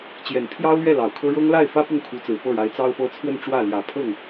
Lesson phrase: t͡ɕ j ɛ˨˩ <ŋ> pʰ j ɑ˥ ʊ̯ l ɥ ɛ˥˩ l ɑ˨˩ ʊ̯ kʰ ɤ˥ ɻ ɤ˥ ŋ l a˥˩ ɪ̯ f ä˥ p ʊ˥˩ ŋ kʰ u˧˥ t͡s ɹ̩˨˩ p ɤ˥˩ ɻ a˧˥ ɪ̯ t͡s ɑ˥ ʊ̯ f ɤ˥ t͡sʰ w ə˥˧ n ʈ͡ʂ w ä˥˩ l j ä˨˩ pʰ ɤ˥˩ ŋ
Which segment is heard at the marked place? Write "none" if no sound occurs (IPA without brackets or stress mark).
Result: n